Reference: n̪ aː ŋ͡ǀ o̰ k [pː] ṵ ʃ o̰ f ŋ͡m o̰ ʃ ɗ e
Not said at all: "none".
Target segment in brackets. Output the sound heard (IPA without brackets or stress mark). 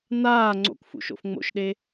f